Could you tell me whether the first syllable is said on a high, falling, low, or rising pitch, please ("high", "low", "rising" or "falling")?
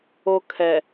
high